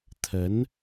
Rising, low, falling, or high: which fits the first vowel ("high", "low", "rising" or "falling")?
rising